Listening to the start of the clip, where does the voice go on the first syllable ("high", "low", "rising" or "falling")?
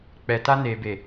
low